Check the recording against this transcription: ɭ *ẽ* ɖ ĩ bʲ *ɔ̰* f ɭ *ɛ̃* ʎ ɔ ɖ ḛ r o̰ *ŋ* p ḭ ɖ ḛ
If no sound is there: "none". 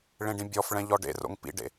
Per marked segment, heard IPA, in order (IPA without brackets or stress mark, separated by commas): ẽ, ɔ, ɛ̃, ŋ